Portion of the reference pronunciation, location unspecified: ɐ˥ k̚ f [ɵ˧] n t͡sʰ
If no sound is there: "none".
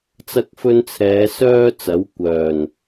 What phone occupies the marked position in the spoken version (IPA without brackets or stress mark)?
ɵ˥